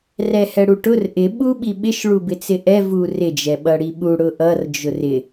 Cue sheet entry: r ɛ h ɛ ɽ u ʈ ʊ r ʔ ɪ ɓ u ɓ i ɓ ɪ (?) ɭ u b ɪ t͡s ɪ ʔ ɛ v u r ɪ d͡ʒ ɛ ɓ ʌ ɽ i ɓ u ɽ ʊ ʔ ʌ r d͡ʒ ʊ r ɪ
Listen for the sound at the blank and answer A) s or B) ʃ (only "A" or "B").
B